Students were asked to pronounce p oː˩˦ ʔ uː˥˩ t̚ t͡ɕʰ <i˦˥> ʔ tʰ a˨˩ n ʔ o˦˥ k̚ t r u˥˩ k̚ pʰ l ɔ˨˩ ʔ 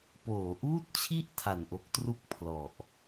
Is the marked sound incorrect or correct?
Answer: incorrect